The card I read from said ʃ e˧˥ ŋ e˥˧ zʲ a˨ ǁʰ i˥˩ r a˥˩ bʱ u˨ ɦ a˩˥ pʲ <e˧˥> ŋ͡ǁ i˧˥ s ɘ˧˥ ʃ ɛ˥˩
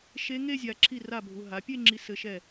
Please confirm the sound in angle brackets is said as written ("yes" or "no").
no